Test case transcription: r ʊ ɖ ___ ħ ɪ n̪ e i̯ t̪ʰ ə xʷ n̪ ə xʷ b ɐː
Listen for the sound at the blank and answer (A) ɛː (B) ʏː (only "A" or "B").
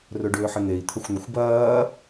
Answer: B